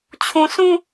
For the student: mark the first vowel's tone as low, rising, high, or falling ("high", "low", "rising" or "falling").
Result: low